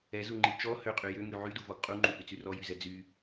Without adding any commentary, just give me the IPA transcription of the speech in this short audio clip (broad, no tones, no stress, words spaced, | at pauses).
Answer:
ɛzuŋ͡ǃi t͡ʃɔ høqʼy jøŋy ʕyduvɔɡ qʼuŋ͡ǃuhyt͡sy rɔjyzɛ d͡zy